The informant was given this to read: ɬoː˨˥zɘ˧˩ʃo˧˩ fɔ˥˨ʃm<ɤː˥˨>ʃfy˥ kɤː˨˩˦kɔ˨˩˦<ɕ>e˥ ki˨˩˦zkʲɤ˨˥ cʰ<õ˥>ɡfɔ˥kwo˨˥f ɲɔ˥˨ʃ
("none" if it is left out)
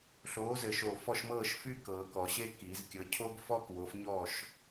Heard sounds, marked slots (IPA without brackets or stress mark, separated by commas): ɤː˥˨, ɕ, o˥